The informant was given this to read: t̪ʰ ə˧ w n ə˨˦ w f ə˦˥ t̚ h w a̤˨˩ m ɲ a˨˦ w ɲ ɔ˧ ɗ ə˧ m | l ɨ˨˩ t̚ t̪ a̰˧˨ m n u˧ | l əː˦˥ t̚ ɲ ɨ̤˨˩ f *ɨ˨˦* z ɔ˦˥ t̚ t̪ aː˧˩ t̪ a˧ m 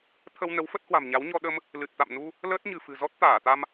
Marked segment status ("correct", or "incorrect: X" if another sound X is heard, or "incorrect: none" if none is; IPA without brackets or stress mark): incorrect: ɨ̤˨˩